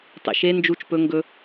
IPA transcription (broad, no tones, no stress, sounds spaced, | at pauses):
tˤ ḭ ʃ e n d͡ʒ u t͡ʃ p ɵ ŋ ɡ ɵ